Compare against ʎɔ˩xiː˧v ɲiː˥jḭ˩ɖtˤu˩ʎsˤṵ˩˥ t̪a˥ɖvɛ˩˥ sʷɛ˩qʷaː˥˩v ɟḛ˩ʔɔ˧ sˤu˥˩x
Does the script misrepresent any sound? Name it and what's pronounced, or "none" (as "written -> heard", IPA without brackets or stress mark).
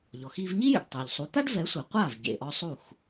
ṵ˩˥ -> u˩˥